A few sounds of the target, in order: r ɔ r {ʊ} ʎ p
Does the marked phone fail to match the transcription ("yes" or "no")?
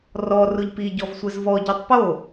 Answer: no